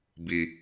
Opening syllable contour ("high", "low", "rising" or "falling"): low